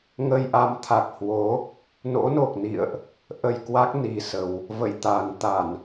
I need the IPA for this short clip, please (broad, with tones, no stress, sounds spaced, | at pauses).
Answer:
ŋ ə˧ j ʔ a˨˦ m t̪ʰ a˨˩ k̚ h w o˨˦ | n o̰˧˥ n o˨˩ k̚ n ḭ˧˨ ə̯ ʔ | ʔ ə˧ j k w a˦˥ k̚ n i˨˩ s ə˨˩ w | v ə̰˧˨ j t̪ aː˨˩ n t̪ a˧˩˨ n